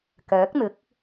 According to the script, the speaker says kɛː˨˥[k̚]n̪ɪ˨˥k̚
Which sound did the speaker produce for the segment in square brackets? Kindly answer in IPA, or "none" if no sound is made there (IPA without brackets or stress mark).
k̚